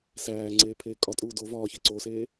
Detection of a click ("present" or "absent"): present